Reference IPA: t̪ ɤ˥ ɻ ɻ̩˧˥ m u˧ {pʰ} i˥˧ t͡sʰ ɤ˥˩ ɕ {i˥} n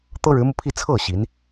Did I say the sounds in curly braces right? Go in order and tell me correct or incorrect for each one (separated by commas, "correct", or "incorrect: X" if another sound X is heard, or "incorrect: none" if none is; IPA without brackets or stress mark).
correct, incorrect: i˧˥